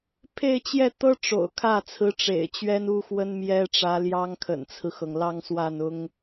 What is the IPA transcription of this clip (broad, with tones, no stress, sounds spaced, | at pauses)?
pʰ e˥˧ ɪ̯ t͡ɕ j ɛ˥˩ t̪ ɤ˥ ʈ͡ʂ o̰˨˩ ʊ̯ kʰ ä˥˩ t͡sʰ ɹ̩˧˥ ʈ͡ʂ ḛ˨˩ ɪ̯ t͡ɕ ɥ ɛ˥ n u˥ x w ə˥ n m j ɛ˥ ʈ͡ʂ ä˧˥ l j ɑ˥ ŋ kʰ ə̰˨˩ n t͡sʰ ɹ̩˦ x ɤ˩ ŋ l ɑ˥˧ ŋ s w a˥˩ n ʊ˥ ŋ